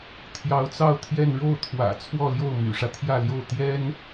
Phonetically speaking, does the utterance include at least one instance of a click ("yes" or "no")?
no